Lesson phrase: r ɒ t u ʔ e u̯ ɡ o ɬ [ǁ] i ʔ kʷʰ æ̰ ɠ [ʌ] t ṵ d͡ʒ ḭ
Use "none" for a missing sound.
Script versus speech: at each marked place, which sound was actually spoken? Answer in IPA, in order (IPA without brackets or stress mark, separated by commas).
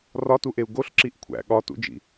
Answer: ǁ, ɒ